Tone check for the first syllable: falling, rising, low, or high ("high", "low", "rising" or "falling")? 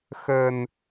low